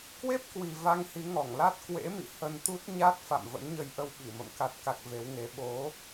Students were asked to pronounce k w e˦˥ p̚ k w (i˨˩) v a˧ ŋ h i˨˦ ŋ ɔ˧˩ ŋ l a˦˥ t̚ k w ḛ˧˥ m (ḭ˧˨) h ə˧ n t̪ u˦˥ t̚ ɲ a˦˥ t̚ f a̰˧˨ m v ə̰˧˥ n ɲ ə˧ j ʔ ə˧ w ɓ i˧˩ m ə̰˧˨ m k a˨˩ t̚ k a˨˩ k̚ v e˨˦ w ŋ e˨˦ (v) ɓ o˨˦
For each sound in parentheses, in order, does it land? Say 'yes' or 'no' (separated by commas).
yes, yes, no